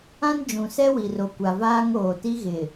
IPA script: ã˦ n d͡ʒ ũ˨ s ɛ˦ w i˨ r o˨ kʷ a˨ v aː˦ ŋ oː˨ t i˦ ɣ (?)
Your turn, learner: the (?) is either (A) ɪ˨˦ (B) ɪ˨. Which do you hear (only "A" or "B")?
B